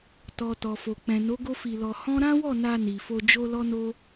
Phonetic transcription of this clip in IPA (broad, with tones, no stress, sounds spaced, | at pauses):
t ɔ˨ t ɔ˨ f o˨ k͡p ɛ̃˨ n o˨˦ ɡ o˦ f i˧ l ɔ˧ h ɔ̃˦ ɾ ã˦ w ɔ˦˨ n a˧ n i˨ f o˧ d͡ʒ o˦ l ɔ˦ n o˦